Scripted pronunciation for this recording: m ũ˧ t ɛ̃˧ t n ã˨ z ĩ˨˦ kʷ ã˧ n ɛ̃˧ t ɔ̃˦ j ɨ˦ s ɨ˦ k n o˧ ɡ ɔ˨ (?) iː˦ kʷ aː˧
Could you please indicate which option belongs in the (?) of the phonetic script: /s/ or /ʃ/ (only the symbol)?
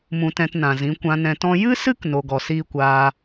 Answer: s